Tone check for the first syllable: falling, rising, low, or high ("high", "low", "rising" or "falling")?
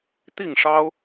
falling